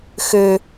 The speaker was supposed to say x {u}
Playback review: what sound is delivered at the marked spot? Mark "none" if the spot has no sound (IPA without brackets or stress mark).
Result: ø